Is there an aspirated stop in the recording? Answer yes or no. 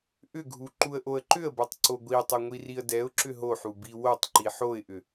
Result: no